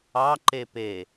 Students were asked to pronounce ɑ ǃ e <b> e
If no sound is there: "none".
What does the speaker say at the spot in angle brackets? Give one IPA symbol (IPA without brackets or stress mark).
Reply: p